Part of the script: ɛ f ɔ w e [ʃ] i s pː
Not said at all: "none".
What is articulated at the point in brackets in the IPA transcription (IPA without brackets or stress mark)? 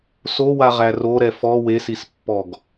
s